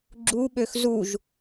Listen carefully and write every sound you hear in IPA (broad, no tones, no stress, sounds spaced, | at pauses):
ɡ͡ǁ u ɓ ø x z u ʒ